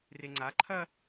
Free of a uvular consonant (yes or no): yes